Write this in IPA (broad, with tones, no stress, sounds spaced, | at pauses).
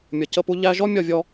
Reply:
mʲ ʌ˨ c ə˦˨ p u˦ ʎ æ˦ ʒ ɔ˦ mʲ ɒ˦˨ vʲ ɔ˦